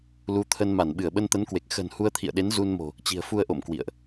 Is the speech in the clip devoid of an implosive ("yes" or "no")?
no